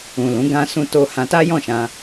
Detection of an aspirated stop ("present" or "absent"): absent